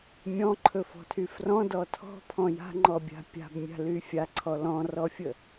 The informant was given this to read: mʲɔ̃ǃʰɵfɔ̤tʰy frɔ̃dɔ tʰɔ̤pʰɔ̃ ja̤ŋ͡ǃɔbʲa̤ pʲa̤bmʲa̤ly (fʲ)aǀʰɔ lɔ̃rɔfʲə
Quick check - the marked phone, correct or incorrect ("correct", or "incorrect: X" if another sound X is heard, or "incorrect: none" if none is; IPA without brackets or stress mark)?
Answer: correct